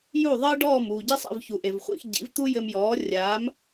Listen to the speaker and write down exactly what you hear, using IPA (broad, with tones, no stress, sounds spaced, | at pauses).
j u˥˩ ðˤ ɘː˥ ɖ ɔː˥˩ m uː˩ ɟ i˥ sˤ ɛ̰˥˩ v ç u˩ ʔ e˩ v χʷ ḭ˧ x ɟ ḭ˩˥ v t̪ u˥ j ɘ˧ m j ɔː˩˥ rʲ aː˩˥ m